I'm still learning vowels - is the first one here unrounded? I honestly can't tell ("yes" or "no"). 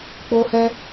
no